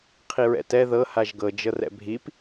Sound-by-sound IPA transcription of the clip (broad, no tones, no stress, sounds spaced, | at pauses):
qʰ i ɹ ɛ̰ t ɛ ð ɤ h a ʒ ɡ ɤ d͡ʒ ɤ r ɛ̰ bʱ i p